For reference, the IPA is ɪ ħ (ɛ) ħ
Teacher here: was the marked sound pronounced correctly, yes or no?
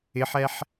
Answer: yes